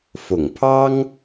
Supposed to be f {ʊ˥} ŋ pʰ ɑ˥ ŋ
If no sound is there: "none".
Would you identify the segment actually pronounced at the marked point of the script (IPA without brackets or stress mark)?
ʊ˨˩